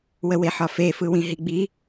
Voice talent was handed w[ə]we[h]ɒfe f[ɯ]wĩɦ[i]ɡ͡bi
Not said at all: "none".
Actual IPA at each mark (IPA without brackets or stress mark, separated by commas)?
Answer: ə, ħ, ɯ, i